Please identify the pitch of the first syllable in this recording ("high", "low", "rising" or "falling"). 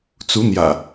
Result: rising